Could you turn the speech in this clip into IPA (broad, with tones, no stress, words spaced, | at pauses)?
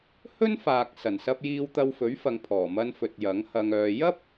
hɵ˥nfaː˨k̚ sɐ˨˩nsɐ˧p̚ jiː˧wt̪ɐ˧wfɵ˨˥ɥfɐ˨ŋ pʰɔː˨˩mɐ˧nfɵ˨t̚ jɐ˨˥ŋhɐ˧ŋœː˧ jɐ˥p̚